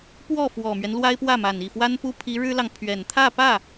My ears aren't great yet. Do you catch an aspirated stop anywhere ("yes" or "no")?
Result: yes